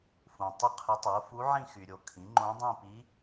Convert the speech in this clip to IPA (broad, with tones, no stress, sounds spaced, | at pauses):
f ũ˨ tˤ ə˥˧ qʰ ə˧˥ tˤ o˩˥ f u˧˥ ʕ ĩ˥˧ x y˨ ɾʲ o˨ kʰ ĩ˩˥ ŋ͡ǃ õ˧˥ dˤ ĩ˥˧ p i˧˥